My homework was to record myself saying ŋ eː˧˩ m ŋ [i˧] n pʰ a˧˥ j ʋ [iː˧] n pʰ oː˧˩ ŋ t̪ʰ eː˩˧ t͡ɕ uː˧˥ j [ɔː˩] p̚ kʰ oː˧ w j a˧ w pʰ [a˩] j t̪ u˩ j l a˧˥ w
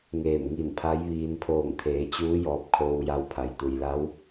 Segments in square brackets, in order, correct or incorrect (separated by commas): incorrect, correct, incorrect, correct